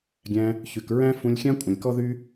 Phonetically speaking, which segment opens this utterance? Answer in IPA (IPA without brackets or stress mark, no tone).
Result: ɡʲ